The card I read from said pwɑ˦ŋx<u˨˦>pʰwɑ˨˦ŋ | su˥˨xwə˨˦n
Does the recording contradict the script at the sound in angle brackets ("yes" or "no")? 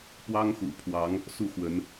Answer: yes